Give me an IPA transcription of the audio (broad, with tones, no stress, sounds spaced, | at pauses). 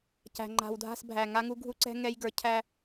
c æ̤˨ ŋ͡ǃ a̤˨ w dʱ a̤˦˨ s bʱ æ˨ ŋ a˦ ŋ u˦ ɡʱ u˦ ǀ ɛ̤˦ ŋ ɛ˦ j ɡ ə˞˨˦ cʰ æ˦